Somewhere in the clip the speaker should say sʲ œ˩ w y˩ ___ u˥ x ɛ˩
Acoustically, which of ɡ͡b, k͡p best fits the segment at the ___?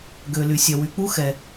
k͡p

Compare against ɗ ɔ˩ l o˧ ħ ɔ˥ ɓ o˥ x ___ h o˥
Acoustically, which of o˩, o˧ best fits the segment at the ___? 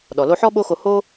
o˧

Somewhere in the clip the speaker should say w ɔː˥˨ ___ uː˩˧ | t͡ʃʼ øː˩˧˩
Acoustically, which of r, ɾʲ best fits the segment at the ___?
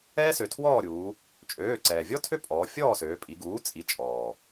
ɾʲ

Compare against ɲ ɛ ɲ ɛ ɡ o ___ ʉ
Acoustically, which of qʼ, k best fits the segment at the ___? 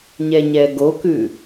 k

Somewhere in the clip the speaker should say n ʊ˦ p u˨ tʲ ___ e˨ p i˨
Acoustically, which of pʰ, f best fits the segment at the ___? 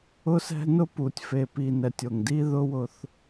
f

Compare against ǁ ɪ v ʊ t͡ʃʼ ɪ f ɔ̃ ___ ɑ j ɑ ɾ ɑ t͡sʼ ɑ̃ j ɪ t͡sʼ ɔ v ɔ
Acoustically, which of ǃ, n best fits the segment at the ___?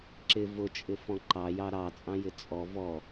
ǃ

